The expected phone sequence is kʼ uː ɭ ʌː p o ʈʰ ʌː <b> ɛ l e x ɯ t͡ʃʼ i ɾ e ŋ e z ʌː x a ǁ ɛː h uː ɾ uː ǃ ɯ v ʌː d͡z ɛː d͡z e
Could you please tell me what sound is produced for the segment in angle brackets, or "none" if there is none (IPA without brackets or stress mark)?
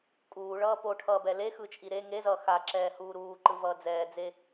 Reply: b